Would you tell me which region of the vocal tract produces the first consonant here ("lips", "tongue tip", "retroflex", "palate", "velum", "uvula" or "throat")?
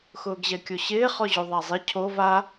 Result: velum